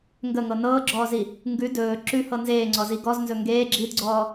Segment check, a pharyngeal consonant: absent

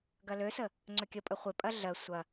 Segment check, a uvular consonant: present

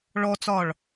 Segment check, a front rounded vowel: absent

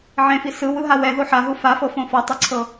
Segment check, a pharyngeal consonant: present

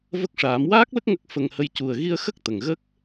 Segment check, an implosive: absent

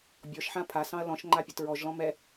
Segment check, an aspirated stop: present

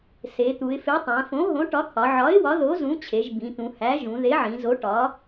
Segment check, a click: absent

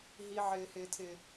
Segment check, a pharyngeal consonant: present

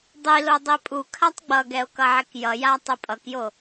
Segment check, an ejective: present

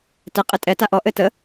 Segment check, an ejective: present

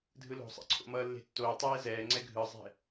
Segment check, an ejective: absent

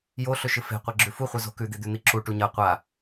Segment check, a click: present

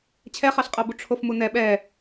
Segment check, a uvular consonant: present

